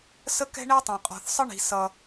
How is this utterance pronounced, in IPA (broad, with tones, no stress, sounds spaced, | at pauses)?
s ə˥ k ɛ̤˥ ɳ ɛ˥ tˤ ɛ̃˩ qʼ ɔ̤˩ θ sˤ ə˥ ɳ i̤˩ s ʌ˩